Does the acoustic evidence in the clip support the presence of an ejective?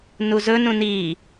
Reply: no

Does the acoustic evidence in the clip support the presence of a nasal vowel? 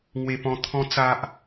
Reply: yes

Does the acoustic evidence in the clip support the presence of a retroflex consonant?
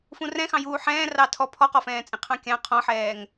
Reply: no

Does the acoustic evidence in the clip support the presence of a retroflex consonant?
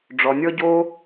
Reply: yes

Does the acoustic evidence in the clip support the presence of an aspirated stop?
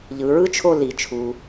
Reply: yes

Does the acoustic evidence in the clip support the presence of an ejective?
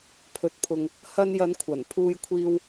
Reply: no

